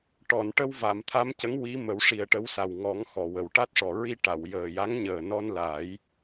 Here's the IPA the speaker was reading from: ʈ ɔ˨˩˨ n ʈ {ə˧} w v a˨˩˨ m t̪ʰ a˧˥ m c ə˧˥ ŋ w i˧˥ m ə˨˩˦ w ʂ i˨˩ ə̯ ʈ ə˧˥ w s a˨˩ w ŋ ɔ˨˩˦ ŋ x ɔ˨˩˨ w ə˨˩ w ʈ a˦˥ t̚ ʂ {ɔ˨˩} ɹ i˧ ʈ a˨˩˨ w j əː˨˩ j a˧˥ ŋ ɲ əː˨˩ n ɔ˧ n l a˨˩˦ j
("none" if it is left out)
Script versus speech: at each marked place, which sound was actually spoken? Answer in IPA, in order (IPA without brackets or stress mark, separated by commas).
ə˧, ɔ˨˩